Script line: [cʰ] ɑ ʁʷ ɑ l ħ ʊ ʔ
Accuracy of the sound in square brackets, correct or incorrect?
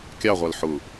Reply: incorrect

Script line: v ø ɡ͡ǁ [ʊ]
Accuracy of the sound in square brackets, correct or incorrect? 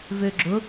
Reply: correct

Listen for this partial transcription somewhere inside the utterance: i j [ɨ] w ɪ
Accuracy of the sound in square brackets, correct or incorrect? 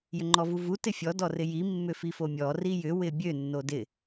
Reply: incorrect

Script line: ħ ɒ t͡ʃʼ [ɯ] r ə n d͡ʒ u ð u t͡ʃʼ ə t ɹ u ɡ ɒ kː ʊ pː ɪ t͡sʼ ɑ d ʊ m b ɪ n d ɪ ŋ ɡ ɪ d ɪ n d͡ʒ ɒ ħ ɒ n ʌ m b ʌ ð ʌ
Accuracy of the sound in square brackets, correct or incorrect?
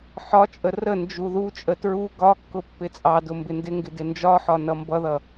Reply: incorrect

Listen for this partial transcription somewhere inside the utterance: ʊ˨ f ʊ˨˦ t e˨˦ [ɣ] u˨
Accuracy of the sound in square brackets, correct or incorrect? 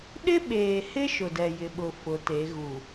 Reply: correct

